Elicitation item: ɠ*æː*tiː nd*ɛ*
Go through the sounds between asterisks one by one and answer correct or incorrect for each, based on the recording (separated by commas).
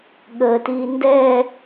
incorrect, incorrect